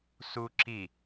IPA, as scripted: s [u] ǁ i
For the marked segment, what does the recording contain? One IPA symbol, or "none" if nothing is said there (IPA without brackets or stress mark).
u